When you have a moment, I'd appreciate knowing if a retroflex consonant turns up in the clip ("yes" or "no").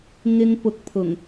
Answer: no